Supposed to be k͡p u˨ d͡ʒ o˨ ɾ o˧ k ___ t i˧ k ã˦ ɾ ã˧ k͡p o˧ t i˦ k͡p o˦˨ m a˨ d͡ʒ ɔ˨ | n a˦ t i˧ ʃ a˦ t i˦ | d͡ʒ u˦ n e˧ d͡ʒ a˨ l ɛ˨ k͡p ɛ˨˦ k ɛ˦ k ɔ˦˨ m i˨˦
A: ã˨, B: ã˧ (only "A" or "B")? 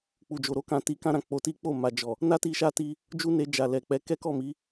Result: A